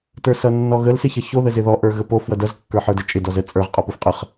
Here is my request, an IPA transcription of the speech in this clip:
tə˞sʌnːɔɣəl sɪçʌço ðəzɪðɔ ʔə˞ɣəpo fwʌdʌz kːə˞ħə˞dət͡ʃʼɪ dɔzə t͡sʼə˞ʁ qʼɔpufqʼəχ

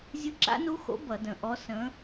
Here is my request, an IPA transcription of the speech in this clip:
zʲɯ˧˥ǁa̰˧˥nu˧˥xo̰˧˥ bʌ˧˩˧də̃˨˩ ʔɔ˧˥sə̃˧˥

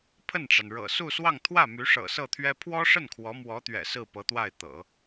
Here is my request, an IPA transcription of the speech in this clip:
pʰə˥˩nʈ͡ʂa˩nɻɤ̰˨˩ su˥˧swɑ˥˧ŋ t̪ʰwä˥˩my˧˥ ʂɤ̰˨˩sɤ˥˩t̪ʰɥɛ˥ pʰwɔ˥ʂə˥˩n kʰwɔ˧˥mwɔ˧˥t̪ɥɛ̰˨˩ sɹ̩˥˩pɤ˧˥t̪wa˥˩ɪ̯ t̪ɤ̰˨˩˦

